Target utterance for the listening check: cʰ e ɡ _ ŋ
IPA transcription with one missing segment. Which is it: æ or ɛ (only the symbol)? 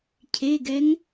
ɛ